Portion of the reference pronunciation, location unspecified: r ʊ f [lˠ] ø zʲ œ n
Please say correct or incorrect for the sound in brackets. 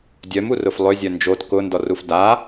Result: correct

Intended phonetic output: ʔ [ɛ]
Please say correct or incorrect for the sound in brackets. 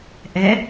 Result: correct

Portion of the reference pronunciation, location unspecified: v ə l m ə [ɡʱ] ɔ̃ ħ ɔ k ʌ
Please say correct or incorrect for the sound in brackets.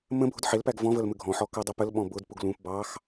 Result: correct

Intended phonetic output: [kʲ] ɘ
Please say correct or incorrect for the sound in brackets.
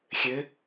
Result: incorrect: xʲ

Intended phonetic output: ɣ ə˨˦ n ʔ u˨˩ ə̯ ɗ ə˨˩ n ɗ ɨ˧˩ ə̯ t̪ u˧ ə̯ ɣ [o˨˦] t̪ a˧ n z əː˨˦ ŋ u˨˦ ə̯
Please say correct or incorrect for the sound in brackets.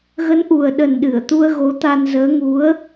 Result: correct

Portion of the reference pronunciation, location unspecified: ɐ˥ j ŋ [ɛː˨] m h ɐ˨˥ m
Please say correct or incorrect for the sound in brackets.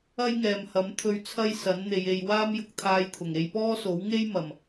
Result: correct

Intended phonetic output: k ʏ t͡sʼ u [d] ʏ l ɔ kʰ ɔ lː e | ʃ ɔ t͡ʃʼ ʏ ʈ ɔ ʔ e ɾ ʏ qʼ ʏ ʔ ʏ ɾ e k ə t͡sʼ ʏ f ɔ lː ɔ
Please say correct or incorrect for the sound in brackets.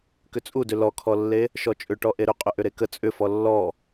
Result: correct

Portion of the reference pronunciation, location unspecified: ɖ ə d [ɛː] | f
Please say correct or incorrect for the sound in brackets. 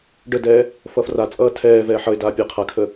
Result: correct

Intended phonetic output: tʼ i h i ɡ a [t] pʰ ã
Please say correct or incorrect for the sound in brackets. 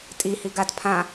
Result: correct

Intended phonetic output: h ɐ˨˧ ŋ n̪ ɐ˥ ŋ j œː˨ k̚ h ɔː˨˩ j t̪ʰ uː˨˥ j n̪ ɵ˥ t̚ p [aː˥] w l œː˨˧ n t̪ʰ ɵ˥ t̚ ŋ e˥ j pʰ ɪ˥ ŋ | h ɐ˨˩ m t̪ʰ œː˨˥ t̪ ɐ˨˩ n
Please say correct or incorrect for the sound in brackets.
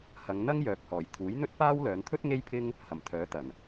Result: correct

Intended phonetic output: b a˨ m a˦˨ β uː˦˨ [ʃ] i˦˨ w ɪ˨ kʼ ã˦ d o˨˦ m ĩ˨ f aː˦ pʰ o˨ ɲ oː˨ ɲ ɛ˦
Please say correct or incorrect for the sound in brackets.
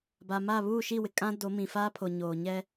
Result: correct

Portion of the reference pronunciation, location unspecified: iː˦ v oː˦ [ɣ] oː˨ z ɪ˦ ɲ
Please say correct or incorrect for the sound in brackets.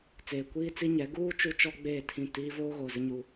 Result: correct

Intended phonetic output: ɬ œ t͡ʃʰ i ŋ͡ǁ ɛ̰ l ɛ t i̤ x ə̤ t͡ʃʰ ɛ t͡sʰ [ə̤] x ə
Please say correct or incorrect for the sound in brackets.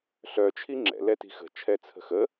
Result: correct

